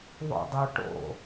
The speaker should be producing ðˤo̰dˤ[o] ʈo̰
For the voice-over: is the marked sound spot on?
yes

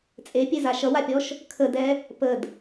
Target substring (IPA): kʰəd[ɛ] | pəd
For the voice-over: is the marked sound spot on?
yes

